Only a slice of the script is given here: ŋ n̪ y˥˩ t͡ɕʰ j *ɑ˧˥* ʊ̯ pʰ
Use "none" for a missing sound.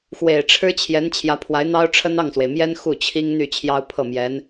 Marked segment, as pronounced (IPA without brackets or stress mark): ɑ˥